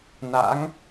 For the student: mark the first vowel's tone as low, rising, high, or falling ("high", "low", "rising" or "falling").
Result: rising